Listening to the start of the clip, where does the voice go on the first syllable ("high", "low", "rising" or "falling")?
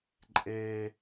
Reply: high